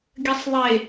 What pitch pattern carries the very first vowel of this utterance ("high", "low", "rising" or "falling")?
low